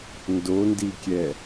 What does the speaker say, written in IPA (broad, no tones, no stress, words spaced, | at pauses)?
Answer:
ndondikʲɛ